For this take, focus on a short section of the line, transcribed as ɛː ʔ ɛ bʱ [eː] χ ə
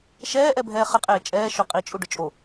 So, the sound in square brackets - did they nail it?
no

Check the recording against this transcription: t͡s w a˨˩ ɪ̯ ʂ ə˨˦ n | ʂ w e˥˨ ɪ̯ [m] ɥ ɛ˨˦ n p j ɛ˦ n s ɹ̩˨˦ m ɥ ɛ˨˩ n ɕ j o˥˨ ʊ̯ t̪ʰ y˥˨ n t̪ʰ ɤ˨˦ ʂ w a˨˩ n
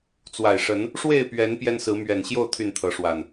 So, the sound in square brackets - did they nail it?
no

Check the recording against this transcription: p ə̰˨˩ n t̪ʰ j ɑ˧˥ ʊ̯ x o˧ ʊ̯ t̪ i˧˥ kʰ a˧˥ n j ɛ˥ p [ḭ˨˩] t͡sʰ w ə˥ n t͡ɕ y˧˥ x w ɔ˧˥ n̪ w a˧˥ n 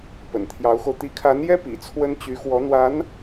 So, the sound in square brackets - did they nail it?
yes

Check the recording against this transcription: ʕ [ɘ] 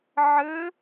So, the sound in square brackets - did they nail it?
yes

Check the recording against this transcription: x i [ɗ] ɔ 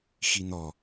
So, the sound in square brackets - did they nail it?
no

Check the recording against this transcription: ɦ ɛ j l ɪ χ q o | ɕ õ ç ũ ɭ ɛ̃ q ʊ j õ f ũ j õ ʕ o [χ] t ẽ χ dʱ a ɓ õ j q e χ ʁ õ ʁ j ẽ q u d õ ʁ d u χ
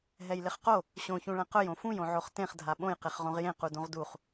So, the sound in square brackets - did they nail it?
yes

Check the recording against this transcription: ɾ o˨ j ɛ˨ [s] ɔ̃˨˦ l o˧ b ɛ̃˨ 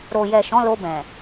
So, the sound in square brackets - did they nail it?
no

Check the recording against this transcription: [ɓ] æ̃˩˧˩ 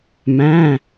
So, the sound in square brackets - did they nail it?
no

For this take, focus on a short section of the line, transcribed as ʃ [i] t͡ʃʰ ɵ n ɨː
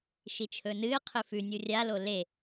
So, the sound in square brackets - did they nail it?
yes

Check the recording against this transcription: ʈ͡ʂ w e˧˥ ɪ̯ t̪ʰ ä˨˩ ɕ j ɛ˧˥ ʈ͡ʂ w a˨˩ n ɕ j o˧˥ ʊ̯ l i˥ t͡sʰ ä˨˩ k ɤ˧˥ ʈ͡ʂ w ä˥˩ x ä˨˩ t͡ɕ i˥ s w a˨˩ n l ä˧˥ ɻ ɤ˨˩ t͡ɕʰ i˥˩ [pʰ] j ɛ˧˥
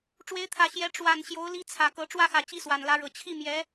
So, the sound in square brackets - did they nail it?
no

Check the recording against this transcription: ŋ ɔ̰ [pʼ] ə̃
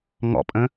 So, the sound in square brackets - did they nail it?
yes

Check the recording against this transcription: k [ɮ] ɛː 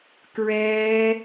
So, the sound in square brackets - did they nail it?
no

